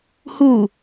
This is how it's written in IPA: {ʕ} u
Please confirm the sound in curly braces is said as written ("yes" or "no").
no